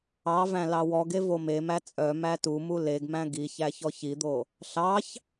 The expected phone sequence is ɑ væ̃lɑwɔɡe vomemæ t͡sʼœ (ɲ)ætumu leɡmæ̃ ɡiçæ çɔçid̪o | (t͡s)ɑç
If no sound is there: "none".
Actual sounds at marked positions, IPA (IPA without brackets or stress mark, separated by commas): m, ɬ